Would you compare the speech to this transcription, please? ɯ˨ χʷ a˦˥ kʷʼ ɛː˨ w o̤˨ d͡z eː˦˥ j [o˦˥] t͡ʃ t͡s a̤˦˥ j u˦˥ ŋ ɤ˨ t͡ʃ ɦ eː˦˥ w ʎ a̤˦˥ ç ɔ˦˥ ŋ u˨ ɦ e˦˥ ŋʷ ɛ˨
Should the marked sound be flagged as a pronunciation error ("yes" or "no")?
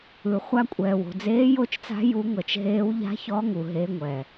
no